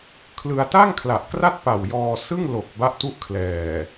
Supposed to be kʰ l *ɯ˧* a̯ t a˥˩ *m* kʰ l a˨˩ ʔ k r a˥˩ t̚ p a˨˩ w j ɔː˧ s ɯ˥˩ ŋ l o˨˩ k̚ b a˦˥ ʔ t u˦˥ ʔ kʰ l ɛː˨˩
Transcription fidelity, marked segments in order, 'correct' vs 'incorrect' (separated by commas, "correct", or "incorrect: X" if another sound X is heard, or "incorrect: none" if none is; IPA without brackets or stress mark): correct, incorrect: ŋ